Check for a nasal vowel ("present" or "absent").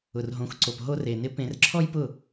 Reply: present